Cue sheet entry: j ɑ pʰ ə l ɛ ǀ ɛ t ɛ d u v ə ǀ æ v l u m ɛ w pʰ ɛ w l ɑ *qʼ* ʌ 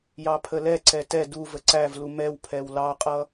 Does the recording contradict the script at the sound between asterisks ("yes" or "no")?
no